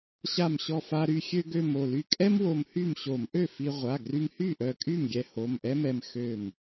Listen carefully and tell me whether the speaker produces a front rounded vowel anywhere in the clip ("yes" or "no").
yes